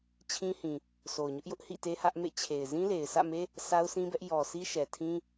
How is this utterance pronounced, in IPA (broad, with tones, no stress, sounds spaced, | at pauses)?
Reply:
t͡ɕʰ ĩ˦ h ĩ˨ | s o˨ ʊ̯ ɲ ʊ˦ ʔ j ʊ˦ ʔ h ḭ˦˨ t e˦ h ä˦ ʔ m ḛ˦˨ t͡ɕʰ e˨ ɪ̯ z ĩ˦ l e˨ ɪ̯ sʰ ä̰˦˨ m e˦ | s a˦ ʊ̯ s ĩ˦ b ɛ˦ ʔ j ɔ˨ sʰ i˦ ʃ ɛ˨ tʰ ĩ˦